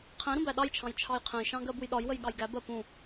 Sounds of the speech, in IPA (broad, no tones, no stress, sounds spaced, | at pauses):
qʰ ɛ̃ ɾ ũ b æ ɗ ɑ j t͡ʃʰ ɑ̃ j t͡ʃʰ ɑ j qʰ ɛ̃ j ʃ ɑ̃ ɡ ɜ b u j ɗ ɒ j w ə j ɠ ɑ j ɡ æ b ɜ p ũ